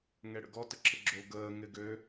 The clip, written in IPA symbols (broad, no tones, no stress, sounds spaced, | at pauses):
ŋ ɛ ɽ ə̰ ɡ ɔ t ə ǁʰ ɪ ɡ͡ǁ o ɡ əː ŋ ɪ ɡ ø